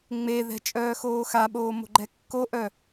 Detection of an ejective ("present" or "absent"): present